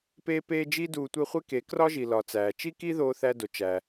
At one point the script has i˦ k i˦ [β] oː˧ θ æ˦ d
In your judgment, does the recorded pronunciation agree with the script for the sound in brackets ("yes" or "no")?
no